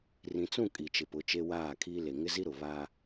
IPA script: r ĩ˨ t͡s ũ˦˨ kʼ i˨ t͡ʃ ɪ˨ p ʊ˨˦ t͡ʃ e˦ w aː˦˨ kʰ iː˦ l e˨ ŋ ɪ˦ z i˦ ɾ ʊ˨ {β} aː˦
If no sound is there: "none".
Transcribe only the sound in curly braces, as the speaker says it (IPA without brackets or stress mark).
β